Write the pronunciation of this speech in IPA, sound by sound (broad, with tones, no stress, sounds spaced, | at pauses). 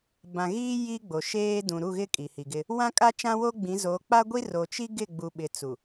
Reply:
b ã˨ ɣ iː˦ j i˦ ɡ͡b o˨ ʃ eː˦ d ũ˨ ɾ u˦˨ ɣ ɪ˦ kʼ i˨ h i˨ ɡ ɪ˦ | w ã˦ kʼ a˦ t͡ʃ ã˦ w o˦ ɡ͡b ĩ˨˦ z o˨˦ k͡p a˦ ɡʷ i˦ r o˨ t͡ʃ i˦ ɡ ɪ˦˨ ɡ͡b u˨ ɓ ɪ˨ t͡s u˨